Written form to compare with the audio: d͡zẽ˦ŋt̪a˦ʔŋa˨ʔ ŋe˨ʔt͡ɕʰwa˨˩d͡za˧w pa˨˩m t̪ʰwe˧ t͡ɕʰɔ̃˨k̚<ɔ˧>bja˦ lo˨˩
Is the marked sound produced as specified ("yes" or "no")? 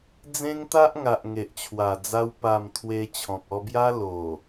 yes